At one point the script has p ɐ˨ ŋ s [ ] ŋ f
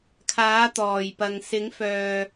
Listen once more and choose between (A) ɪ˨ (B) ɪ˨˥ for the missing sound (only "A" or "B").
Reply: B